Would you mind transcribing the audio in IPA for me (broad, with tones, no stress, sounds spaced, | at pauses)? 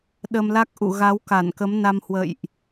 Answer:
ɗ ə˧ m l a˦˥ k̚ ʔ ṵ˧˨ ɣ a˨˦ w k a˧˩ n k ə˨˦ m n a˧ m h w ə̰˧˨ j ʔ